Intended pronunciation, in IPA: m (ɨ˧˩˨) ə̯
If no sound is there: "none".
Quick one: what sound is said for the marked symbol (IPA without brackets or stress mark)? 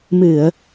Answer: ɨ˧˩˨